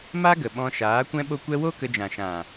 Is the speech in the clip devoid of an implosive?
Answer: no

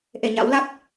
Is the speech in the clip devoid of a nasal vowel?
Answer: yes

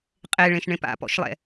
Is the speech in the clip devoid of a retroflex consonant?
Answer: no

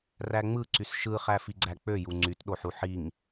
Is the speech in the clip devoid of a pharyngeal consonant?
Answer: no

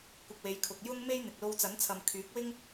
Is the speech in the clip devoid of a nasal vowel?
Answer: yes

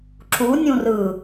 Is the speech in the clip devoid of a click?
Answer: no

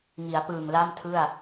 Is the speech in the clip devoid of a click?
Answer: yes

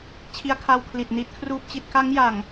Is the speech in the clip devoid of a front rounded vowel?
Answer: yes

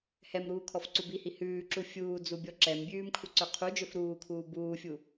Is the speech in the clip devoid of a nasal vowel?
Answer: yes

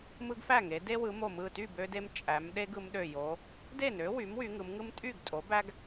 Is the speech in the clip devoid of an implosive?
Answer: no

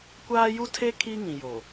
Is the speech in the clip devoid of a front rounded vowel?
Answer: yes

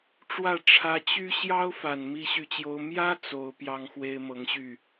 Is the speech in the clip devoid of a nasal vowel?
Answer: yes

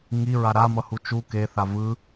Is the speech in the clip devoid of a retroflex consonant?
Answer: yes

